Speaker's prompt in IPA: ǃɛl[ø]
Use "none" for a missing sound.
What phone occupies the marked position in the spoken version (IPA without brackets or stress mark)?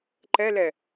ɛ